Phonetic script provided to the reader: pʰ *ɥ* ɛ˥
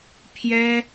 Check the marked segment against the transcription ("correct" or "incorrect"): incorrect